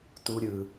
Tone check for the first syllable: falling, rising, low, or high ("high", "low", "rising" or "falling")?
high